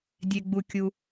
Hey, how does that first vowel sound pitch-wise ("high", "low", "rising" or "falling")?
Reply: low